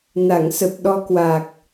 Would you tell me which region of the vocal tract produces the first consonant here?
tongue tip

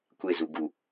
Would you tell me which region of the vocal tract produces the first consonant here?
velum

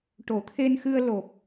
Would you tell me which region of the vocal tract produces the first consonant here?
retroflex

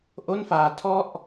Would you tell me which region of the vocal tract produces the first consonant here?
throat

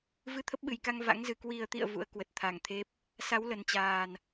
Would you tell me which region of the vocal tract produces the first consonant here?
lips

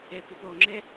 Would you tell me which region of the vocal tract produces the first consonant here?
lips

